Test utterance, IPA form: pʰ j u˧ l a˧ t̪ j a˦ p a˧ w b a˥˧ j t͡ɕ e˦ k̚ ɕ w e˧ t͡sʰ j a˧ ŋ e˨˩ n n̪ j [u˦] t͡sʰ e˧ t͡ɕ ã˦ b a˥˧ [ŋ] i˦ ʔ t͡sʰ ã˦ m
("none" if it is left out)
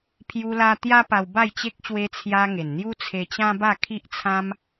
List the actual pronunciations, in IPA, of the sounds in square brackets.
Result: u˦, kʰ

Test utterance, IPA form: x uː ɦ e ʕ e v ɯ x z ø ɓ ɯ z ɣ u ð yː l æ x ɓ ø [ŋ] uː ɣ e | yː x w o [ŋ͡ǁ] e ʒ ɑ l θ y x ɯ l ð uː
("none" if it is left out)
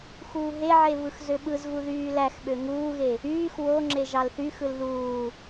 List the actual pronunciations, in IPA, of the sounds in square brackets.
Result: ŋ, ŋ͡ǁ

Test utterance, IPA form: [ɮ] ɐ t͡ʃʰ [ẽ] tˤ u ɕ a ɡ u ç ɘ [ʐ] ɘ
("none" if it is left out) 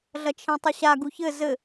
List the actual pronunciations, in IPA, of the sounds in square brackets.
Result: ɮ, ẽ, z

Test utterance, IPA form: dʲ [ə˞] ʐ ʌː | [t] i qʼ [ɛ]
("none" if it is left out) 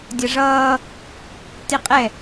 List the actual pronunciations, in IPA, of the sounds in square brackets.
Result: ʌ, t, ɛ

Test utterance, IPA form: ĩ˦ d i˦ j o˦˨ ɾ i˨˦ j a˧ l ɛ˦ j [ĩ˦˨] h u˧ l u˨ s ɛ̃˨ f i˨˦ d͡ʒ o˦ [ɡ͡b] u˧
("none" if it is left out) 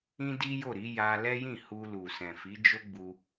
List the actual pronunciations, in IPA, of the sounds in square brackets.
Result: ĩ˦˨, ɡ͡b

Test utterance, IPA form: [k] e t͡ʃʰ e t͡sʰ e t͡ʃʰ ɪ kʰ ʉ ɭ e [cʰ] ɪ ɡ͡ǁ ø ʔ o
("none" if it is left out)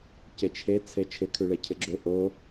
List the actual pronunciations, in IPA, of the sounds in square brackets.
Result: c, cʰ

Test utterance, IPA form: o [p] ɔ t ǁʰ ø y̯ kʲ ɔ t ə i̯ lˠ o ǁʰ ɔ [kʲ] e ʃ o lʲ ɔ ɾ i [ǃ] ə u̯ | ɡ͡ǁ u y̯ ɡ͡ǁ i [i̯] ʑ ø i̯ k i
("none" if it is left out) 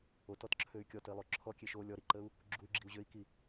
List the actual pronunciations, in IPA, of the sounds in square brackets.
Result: t, kʲ, ǃ, u̯

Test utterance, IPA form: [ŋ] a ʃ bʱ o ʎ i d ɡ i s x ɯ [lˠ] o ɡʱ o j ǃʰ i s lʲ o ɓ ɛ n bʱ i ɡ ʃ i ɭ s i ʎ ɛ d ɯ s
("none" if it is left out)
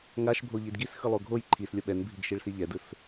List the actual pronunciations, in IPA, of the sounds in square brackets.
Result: ŋ, lˠ

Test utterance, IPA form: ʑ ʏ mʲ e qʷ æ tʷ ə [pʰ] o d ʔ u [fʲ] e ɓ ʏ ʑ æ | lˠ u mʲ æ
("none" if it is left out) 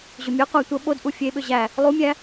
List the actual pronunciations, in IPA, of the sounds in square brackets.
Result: ɓ, fʲ

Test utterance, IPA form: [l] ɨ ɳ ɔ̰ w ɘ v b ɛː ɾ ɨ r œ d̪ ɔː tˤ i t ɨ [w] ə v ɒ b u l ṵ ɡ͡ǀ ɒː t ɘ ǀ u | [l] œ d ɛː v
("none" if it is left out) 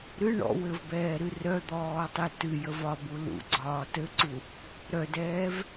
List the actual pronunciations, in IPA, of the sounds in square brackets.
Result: ɾ, j, ɾ

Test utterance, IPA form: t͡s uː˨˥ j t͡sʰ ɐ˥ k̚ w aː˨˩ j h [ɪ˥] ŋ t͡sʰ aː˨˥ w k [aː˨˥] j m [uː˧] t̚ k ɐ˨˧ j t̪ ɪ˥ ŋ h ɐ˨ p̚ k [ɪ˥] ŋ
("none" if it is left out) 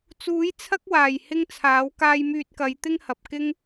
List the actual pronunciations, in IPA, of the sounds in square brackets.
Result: ɪ˥, aː˧, yː˧, ɪ˥

